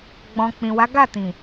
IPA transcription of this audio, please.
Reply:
ɡ͡b ɔ̃˨ k͡p ĩ˨ w a˨˦ ɡ a˦˨ t ĩ˨

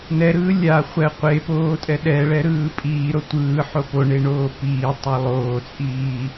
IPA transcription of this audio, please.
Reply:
n ɛ ɾ ɯː lʲ a χʷ ɛ qʷ e p oː tʼ ɛ ɗ ɛ ɭ ɛ ɾ ɯː pʼ iː ɾ o tʷ ɯː ħ o p o ɳ e ɳ oː p iː tˤ a lˠ oː t͡sʼ iː

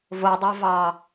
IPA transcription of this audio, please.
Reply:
v o dˤ ɑ v ɑ

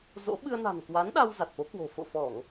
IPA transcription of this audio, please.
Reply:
z o̰˧˥ ɓ ɨ˧ ə̯ n a̤˨˩ n k w a˨˦ n ɗ a˧ w z a˨˩ t̚ f o˨˦ k w o̤˨˩ f o̰˧˨ f ɔ˧˩˨ ŋ

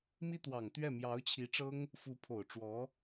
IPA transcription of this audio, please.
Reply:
m i˥ t̪ w ɑ˨˩ ŋ t̪ ɥ ɛ˥˩ m j ɑ˧˥ ʊ̯ t͡ɕʰ i˧˥ ʈ͡ʂ ɤ˥ ŋ | f u˧˥ pʰ o˨˩ ʊ̯ ʈ͡ʂ w ɔ˧˥

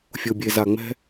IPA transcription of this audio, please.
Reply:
fʲ o˨ bʲ e˨ z a˨ ŋ͡m ɛ̤˦

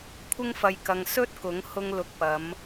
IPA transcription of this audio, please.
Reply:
kʷʰ ɪ˥ ŋ f ɐ˧ j k ɐ˧ ŋ s ɵ˥ t̚ k ʊ˨˥ ŋ h ʊ˧ ŋ l ʊ˨˥ k̚ p ɐ˨˧ m

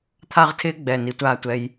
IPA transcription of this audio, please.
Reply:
t̪ʰ a˥˧ ʁ tʰ ɪː˥ ɡ͡b ɛ˧˩ n i˩˧ tʷ aː˧˩ tʷ ɛ˧ j

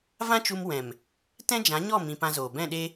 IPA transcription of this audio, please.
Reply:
v ã˦ t͡ʃ u˧ m w ɛ̃˨ m | t ɛ̃˦ d͡ʒ ã˨˦ ɲ ɔ˦˨ m ĩ˧ p ã˧ z oː˨ b ɛ̃˦˨ ɗ e˦

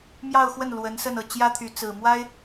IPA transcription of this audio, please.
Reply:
m j ɑ˥˧ ʊ̯ x w ə˥˩ n l w ə˧˥ n s ə˥˧ n ɤ˥˩ t͡ɕ j ä˥ t̪ʰ y˧˥ t͡s ɹ̩˨˩ m w a˥ ɪ̯

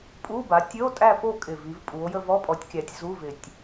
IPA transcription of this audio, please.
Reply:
pʼ u˧˥˧ b a˩˥ tʲ ə˧˥˧ o̯ tʼ æ˦˨ p o˦˨ kʼ ɪ˨˩ v i˩˧ v pʼ u˩˧ o̯ j ə˦˨ v ɔ˧˥˧ pʼ ɔ˩˥ tʲ kʲ æ˩˧ tʲ z u˧˥˧ v ɪ˨˩ tʲ

